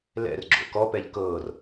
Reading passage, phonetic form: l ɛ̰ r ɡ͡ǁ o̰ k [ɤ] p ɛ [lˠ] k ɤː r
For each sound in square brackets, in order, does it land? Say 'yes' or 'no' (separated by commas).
no, no